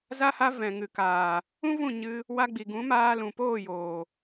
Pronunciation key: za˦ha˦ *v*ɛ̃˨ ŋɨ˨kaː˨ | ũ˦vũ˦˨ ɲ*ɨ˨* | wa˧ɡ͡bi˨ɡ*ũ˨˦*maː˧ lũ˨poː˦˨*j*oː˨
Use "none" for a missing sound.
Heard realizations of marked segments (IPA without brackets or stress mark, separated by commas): v, ɨ˧, ũ˨˦, j